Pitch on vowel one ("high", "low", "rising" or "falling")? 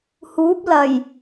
rising